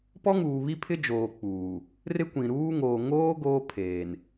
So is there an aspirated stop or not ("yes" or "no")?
yes